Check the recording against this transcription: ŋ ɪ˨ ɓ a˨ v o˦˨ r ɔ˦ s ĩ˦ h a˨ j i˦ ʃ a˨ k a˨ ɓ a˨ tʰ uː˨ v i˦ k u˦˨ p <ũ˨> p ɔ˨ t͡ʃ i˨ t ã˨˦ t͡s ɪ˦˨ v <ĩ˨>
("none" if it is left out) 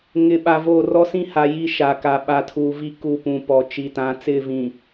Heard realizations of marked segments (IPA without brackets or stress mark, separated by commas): ũ˨, ĩ˨